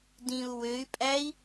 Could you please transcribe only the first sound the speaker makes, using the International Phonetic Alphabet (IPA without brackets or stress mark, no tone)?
d